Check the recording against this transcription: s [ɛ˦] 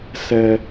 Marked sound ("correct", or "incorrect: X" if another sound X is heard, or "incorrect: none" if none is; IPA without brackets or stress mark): incorrect: ɛ˨